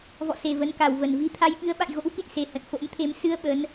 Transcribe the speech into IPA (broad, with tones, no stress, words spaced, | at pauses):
vɔ̰˧˨se˨˩ və˨˦nka˨˩w və˨˩nvi˨˦ t̪ʰa˧jɓɨ˨˦ə̯ɓa̰˧˨j ɣo̰˧˥wkḭ˧˨nse˨˩ hə̰˧˨nfo̰˧˥mt̪ʰe˧m sɨ˧ə̯ ɓə˨˦n